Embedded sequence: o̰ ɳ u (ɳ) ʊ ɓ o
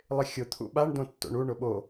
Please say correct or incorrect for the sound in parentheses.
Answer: correct